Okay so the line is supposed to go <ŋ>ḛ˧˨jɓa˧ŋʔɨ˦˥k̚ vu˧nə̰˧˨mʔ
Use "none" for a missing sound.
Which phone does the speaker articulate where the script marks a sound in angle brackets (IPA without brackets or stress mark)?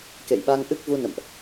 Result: k